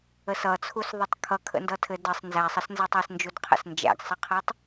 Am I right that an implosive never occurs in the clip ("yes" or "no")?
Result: yes